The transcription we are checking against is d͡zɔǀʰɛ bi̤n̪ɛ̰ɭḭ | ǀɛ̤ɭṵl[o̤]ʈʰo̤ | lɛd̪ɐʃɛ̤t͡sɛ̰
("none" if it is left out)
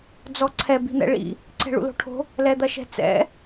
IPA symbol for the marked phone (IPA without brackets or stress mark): o̤